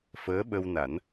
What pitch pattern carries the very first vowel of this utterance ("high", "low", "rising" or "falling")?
rising